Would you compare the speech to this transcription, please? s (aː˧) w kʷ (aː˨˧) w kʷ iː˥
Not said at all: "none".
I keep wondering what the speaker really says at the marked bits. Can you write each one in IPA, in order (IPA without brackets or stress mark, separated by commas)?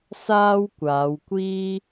aː˥, aː˨˧